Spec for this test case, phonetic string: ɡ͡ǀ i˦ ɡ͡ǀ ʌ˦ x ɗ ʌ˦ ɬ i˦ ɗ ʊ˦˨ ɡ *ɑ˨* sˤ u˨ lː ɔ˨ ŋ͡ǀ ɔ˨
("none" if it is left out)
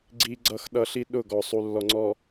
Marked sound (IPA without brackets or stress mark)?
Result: ɔ˨